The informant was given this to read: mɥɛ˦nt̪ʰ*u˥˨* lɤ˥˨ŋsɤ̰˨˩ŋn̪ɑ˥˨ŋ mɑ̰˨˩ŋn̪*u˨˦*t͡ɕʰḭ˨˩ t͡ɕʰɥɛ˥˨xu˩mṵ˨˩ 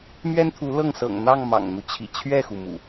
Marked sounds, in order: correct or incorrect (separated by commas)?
incorrect, incorrect